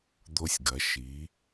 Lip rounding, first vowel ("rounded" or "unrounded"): rounded